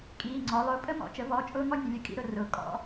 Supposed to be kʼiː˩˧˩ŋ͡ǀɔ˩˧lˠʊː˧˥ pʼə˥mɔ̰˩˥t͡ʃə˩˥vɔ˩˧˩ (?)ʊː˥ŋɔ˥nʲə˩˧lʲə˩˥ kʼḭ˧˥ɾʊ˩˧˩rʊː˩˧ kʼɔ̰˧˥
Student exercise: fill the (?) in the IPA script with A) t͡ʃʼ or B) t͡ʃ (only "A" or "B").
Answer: A